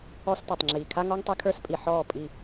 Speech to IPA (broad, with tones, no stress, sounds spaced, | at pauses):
ɔ˦ s t ɔ˨ tˤ ŋ͡ǁ iː˨ kʰ a˦ ŋ ɔ˦ ŋ tˤ e˦ kʰ ə˞˦ s pʼ i˨ ħ ɔː˦˨ pʼ i˦˨